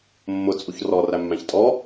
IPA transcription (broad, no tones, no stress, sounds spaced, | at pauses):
mː ʊ t͡sʼ u ç r ɔ r æ mː æ̃ ç tʼ ɔ